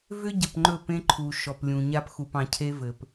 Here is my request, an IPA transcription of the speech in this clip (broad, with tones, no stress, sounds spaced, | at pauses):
v ʏ˦ ɟ ə˨ p ŋ͡ǃ ɵ˦˨ p ẽ˦ ǃʰ u˨ ʃ ɔ˨ p lʲ ũ˨ ɲ a˦ p x u˨ p ɑ̃˨ cʰ e˦ v ɘ˨ p